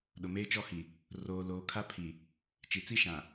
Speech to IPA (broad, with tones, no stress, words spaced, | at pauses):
ɗʊ˨meː˦t͡ʃɔ˦hi˨ | roː˨ loː˨kʰa˦pʰi˨ | t͡ʃi˨t͡si˦ ʃã˨